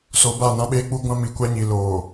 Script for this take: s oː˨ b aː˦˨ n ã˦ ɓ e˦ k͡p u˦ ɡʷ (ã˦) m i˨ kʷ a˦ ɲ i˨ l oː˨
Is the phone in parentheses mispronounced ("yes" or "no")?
no